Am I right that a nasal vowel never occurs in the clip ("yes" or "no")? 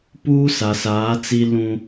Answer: no